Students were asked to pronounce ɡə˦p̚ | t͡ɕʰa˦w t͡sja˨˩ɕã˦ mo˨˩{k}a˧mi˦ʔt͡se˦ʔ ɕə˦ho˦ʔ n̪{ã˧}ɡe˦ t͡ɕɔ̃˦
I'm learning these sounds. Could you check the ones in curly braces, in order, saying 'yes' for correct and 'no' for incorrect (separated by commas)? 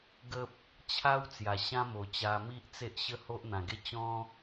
no, no